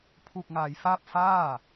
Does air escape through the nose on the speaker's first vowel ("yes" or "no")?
no